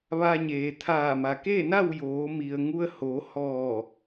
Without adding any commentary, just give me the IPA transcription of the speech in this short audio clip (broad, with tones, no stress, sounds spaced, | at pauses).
ʋ a˧ ɲ eː˩ t̪ʰ aː˧˩ m a˩ k eː˥˨ n a˥˨ w j oː˩˧ m i˩ ə̯ ŋ u˧ ə̯ h o˩˧ h ɔː˧˩